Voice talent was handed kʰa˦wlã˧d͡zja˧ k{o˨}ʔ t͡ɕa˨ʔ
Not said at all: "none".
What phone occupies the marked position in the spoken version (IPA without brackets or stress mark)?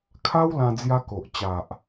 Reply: o˨